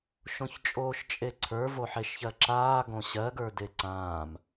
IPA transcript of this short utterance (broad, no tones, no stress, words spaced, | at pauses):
ʃõçt͡ʃʼoːʃt͡ʃʼeǀʰə˞ voħeʃçɜǁaː ɡõɕɜɡə˞ deǀãːm